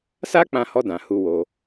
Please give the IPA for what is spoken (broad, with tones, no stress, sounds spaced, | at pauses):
s a˦ k͡p ã˧ h ɔ˧ d ã˨ h u˧ w o˧